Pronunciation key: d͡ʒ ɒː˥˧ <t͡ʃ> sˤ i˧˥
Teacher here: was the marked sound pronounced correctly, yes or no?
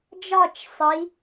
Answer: yes